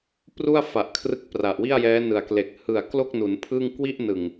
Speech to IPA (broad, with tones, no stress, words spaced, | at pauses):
pru˥˩a̯fa˨˩ʔ kʰrɯ˦˥k̚pra˨˩ʔwi˥˩a̯jɛː˦˥ nɯ˨˩a̯kle˨˩k̚ hɯ˨˩a̯klo˥˩k̚nu˩˦n pʰɯ˥˩ŋ kwi˥˩ʔnɯ˨˩ŋ